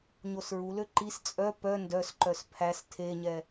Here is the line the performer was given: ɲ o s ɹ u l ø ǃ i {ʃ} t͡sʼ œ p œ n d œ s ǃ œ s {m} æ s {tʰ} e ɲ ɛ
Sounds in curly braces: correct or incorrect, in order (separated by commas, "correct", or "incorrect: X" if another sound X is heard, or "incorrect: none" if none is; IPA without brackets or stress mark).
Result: incorrect: s, incorrect: pʰ, correct